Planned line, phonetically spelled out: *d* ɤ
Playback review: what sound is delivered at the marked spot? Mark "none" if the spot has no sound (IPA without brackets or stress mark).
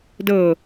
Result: d